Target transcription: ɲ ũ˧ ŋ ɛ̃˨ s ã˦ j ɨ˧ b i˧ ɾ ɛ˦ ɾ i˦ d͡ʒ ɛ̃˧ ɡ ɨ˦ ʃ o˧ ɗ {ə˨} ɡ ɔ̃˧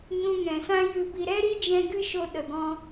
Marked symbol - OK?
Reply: yes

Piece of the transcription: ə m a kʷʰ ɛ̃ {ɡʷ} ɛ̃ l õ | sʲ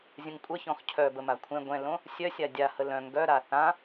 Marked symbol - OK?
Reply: yes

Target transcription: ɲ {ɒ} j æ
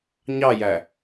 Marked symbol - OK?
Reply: no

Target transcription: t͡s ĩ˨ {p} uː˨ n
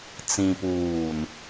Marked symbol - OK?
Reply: yes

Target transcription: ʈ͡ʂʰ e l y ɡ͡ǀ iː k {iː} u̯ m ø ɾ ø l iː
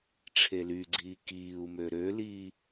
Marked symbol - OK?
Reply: yes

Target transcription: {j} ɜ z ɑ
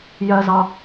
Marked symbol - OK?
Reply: yes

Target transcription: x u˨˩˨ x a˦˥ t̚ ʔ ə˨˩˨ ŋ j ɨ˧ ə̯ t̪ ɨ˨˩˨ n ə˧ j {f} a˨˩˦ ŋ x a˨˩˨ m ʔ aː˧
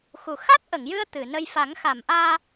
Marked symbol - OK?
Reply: yes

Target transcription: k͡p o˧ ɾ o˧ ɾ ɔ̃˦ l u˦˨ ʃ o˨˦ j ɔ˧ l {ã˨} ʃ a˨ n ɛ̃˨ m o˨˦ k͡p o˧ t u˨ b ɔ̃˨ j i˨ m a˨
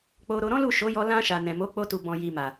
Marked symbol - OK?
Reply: no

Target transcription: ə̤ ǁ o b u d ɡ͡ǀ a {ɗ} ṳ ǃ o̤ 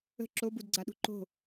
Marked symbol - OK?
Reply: yes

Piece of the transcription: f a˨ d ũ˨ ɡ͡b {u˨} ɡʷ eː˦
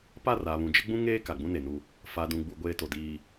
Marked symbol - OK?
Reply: yes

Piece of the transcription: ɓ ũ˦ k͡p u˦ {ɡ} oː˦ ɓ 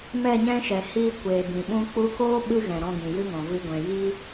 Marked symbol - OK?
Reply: no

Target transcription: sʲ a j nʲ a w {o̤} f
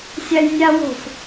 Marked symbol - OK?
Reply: yes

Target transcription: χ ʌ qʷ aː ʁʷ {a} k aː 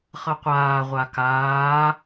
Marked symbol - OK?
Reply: yes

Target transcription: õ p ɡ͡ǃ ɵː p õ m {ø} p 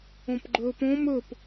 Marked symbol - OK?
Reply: no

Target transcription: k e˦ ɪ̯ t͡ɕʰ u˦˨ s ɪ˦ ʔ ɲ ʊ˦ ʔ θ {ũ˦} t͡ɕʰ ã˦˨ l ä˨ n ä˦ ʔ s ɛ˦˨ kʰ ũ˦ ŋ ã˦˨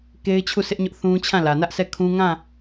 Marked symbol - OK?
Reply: yes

